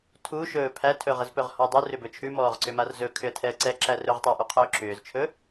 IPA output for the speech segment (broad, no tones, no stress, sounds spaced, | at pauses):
tʰ u ʃ ɵː pʰ æ tʰ ɵ ʁ ə z p ɵ ʁ h ɔ dˤ ʉ r ʏ b ɵ t͡ʃʰ ʉ m ɔː ʁ ǀ ʏ m a r z ɵ kʰ ʏ ə̯ tʰ ɛ ə̯ ǀ ɛ ǁ æ r ɵ ʁ tˤ æ ʔ ʉ qʰ ʏː ǁ ʏː z t͡ʃʰ ɵ